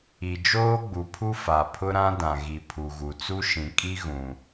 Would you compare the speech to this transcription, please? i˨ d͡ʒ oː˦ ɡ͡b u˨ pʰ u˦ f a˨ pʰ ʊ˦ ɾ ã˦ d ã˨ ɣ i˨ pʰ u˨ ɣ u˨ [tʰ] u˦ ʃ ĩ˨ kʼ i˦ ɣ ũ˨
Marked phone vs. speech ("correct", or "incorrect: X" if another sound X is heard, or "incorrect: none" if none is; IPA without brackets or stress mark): incorrect: t͡s